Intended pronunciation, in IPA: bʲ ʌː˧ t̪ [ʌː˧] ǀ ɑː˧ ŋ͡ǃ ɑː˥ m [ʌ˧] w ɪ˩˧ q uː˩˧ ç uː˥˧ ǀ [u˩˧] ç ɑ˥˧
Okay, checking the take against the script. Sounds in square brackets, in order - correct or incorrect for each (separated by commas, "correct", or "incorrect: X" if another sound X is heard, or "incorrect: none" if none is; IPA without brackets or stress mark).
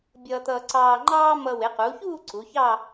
correct, correct, correct